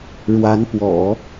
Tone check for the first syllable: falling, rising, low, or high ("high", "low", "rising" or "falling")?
rising